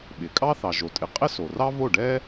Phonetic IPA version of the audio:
ɓ ɪ˩ kʼ ɑ˥ θ ɑ˩ ʒ o˩ tʼ ɪ˩˥ qʼ ɪ˥ s o˩ r ɑ˥ v o˥˩ ɖ ɛ˥

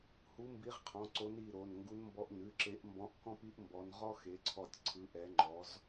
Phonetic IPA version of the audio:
h u˨˦ m b i˨˦ ʁ qʰ ɔ̃˩˧˩ ǀ o˨˦ n i˩˧˩ ɾ o˩˧˩ n ŋ ɡ u˨˦ n m b ɔ˨˦ ʔ n ʉ˩˧˩ ǁ e˨˦ ʔ m b ɔ̃˨˦ ʔ k ɔ̃˥ p i˥ ʔ m b ɔ˨˦ n ʁ ɔ˥ x e˨˦ ǀʰ ɔ˦˨ tʲ ǀʰ ɯ˨˦ ʔ ɛ˨˦ ŋ͡ǃ ɔ˨˦ z

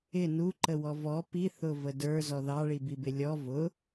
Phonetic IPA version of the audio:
ɪ n u ǃ ə w ɔ v ɔ p i θ ʊ v ə d ə˞ z ɔ ð ɑ ɭ i b i b ɪ lʲ ɔ v ʊ

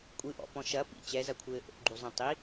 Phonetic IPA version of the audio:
kʷʼ ɨ ʔ ɔ̰ p ɔ̃ ʃ ɐ p ḭ t͡ɕ ɛ z ɐ kʷʰ ɘː ʔ o̰ ɡ͡ǃ u zˤ ĩ tˤ i

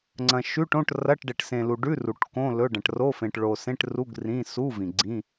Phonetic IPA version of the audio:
ŋ͡ǀ ɐ̃˨ ʃ ʉ˧˥˧ ʈ õ˧˥˧ ʈ r ɐ˧˥˧ ʈ ɖ e˨ ʈ s ẽ˨ l u˨ ɖ ʉ˧˥˧ r u˨ ʈ k õ˧˥˧ l ɵ˧˥˧ ɖ ɐ̃˨ ʈ r o˧˥˧ f ẽ˨ ʈ ɭ o˨ s ẽ˧˥˧ ʈ r u˧˥˧ ɡ r ĩ˧˥˧ s u˧˥˧ v ĩ˨ ɡ͡ǀ ĩ˧˥˧

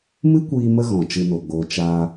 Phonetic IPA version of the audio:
m ɨ˦ kʷ iː˧ m ə˧ ɣ ɔ̃˨ t͡ʃ ɨ˧ n o˨ ɡ͡b oː˧ t͡ʃ aː˧

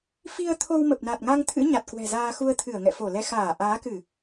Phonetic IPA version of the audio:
f i˧ ə̯ t̪ʰ o˧ w m ə˨˩ p̚ n a˨˩ t̚ ŋ a˧ ŋ t̪ʰ ɨ̰˧˥ ɲ a˨˩ t̚ k w ɛ̤˨˩ z aː˧ x u˧ ə̯ t̪ʰ ɨ˧˩ ə̯ ŋ ɛ̰˧˨ f o˧˩ l ɛ˧ x aː˧˩ ʔ aː˨˦ k ɨ˧˩˨

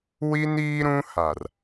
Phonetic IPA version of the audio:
w i˦ n iː˦ ɾ ũ˦ h a˨ r

